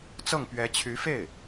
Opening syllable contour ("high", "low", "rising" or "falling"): falling